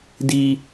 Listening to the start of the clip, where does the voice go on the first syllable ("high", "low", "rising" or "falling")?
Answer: high